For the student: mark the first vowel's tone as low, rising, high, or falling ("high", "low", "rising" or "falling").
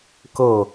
falling